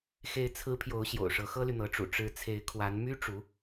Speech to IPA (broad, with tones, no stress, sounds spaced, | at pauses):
x e˧˥ ɪ̯ t͡sʰ ɹ̩˧˥ pʰ j o˧˥ ʊ̯ ɕ j o̰˨˩ ʊ̯ ʂ ɤ˧˥ x ɤ˥ l y˨ n̪ ɤ˧˥ ʈ͡ʂ ṵ˨˩ ʈ͡ʂ ɻ̩˧˥ t͡sʰ e˧˥ ɪ̯ kʰ w a˧˥ n m y˥ ʈ͡ʂ u˧˥